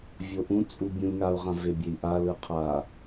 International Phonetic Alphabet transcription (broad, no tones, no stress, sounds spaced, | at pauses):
vʲ o ʔ ũ t͡sʼ u bʲ ũ lʲ ŋ a u̯ ʁ ã v e bʲ e i̯ ʔ a l ɯ qʰ a